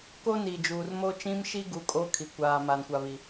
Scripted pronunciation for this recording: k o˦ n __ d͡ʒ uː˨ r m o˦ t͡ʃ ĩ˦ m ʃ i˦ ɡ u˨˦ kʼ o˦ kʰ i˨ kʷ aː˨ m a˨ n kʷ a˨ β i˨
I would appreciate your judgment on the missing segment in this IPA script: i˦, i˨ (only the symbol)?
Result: i˨